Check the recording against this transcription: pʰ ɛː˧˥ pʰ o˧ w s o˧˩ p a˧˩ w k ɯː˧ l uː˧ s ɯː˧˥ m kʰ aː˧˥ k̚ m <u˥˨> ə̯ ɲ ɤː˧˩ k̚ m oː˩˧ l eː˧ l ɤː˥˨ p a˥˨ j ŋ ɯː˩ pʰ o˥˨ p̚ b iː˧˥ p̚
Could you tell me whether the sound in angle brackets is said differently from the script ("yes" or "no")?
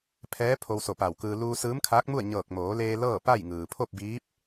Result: no